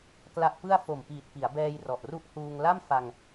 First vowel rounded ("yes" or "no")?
no